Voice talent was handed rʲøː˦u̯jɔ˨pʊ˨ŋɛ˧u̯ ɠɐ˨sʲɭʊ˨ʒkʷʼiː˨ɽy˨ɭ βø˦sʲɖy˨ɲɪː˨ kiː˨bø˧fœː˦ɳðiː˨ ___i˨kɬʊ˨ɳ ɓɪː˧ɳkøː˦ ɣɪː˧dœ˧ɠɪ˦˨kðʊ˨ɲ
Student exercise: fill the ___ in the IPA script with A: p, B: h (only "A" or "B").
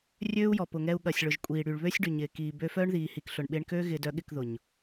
B